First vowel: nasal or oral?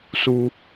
oral